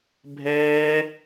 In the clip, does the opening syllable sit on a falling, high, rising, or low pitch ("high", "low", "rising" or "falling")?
high